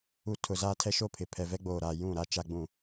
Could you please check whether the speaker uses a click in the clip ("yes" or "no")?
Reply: no